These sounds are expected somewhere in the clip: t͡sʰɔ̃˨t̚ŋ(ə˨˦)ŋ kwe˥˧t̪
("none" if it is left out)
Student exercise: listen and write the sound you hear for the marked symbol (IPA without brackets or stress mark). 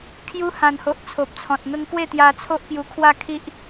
ə˦